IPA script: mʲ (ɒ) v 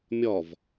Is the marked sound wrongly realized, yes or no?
no